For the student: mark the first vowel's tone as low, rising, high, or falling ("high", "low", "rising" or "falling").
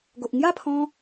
low